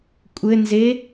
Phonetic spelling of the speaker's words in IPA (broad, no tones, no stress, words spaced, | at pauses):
kʷʼɘnze